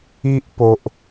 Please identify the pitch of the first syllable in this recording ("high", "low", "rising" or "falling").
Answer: high